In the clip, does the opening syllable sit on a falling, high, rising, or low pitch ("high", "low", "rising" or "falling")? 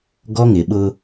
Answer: high